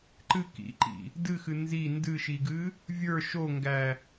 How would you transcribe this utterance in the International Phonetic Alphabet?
ǃ ɨ k ḭ ǃ ḭ | d ɨ x ɨ n z i n d ɨ ʃ i ɡ ɨ | vʲ ə˞ ʃ o ŋ ɡ æ

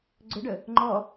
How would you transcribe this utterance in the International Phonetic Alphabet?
ɡ͡ǀ ɵ ɖ ə | ŋ͡ǃ ɔ

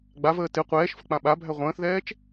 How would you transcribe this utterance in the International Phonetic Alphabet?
ɡ͡b a v əː t ɪ qʷ ɛː ʃ f ə k͡p ã ɓ a bʱ æ ʁʷ ə̃ː θ ð ɛː t͡ʃ

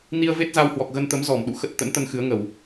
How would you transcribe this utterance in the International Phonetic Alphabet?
n i˧ ə̯ v e˦˥ t̚ z a˧ w h w ɔ˨˩ k̚ ɣ ə˧ n t̪ ə˨˦ m z ɔ˧˩ m ɗ ṵ˧˨ x ə˦˥ t̚ t̪ ə̰˧˥ n t̪ ə˧ n x ɨ˨˦ ə̯ ŋ ə˧˩˨ w

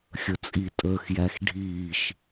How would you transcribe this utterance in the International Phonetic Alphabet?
xʲ ə t͡sʼ i tʼ əː x j æ x ɖʱ iː ʃ

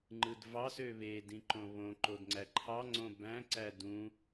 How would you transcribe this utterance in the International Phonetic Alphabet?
ŋ͡ǃ ɯ d v ɑ s ø β e d ĩ ǃ õ β õ ǃ o d ŋ͡ǀ æ ǃʰ ɑ ŋ͡ǀ õ b æ̃ ǀ æ d ũ

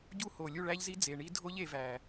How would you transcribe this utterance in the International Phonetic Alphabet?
ɟ u˦˥ h o˨˩ lʲ u˥˨ ɭ æ˦˥ ʎ z i˦˥ d͡z e˨˩ ɳ i˦˥ dʱ o˦˥ ʎ e˩˧ v æ˨˩

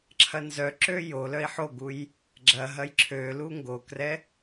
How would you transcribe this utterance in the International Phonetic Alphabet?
ǁʰ ɐ n z œ ǁ ø j o l œ i̯ ħ o ɡ u j | ɡ͡ǁ ɐ ɦ ɐ j ǁʰ ø l u ŋ ɡ o k r ɛ

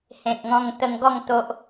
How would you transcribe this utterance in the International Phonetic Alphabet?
h ẽ˨ k̚ ŋ ɔ̃˧ ŋ t̪ ə˧ ŋ ɡ ɔ˥˧ ŋ t̪ o˦ ʔ

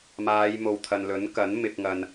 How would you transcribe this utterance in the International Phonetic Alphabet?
m aː˨˧ j m o˨ w t̪ʰ ɐ˨ n l ɵ˨˥ n k ɐ˨˥ n m ɪ˨ k̚ ŋ ɐ˨ n

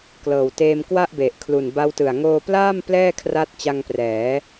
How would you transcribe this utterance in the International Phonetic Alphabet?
k l ɤː˨˩ w t eː˧ m k w a˥˩ ʔ b e˨˩ ʔ kʰ l u˨˩ n b a˦˥ w t ɯ˨˩ a̯ ŋ oː˧ p l aː˥˩ m p l ɛː˥˩ kʰ r a˦˥ t̚ t͡ɕ a˧ ŋ p r ɛː˩˦

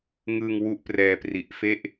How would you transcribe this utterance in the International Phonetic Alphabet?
ŋ ɯː˧ ŋ w u˥˩ ʔ p r ɛː˧ p r i˨˩ ʔ f e˥˩ ʔ

